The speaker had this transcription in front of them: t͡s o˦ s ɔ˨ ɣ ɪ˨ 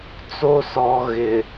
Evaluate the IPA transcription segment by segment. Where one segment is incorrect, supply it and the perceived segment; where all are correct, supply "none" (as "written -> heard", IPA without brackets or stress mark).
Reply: none